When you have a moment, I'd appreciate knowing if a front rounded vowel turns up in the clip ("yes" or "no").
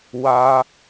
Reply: no